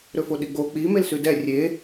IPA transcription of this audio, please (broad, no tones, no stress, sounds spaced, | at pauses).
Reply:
ɾ ɵ f o ɗ i ɡ͡b o k͡p i m e l s ʉ d ɛ rʲ e